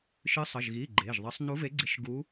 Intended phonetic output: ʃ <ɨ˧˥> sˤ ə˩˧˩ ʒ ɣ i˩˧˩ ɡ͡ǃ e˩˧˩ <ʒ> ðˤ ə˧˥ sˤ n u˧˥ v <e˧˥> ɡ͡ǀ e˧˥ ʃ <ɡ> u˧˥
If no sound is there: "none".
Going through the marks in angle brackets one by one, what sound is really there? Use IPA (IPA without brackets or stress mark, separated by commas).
ɨ˧˥, ʒ, e˧˥, ɡ